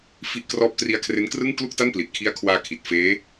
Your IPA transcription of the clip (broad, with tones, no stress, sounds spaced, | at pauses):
f i˥˩ ʔ k r ɔː˥˩ p̚ t r i˧ a̯ kʰ r e˦˥ n k r ɯ˥˩ ŋ k l u˥˩ k̚ t a˥˩ n p l i˨˩ t̚ kʰ i˦˥ a̯ kʰ w aː˧ kʰ i˨˩ t̚ f eː˦˥